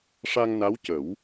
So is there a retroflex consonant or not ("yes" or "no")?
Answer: yes